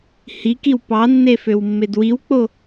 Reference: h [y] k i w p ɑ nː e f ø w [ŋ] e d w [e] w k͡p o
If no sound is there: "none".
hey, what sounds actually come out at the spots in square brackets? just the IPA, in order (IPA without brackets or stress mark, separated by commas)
i, mː, i